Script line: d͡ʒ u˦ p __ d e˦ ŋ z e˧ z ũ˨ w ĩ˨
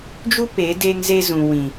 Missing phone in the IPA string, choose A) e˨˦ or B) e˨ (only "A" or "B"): A